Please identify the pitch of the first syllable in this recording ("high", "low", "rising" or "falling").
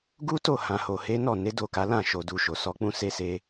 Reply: high